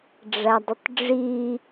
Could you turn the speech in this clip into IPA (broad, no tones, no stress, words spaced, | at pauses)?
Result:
ɖ͡ʐædˤɪtˤɖ͡ʐi